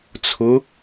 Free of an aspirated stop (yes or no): no